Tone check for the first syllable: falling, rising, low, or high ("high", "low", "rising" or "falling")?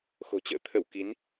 low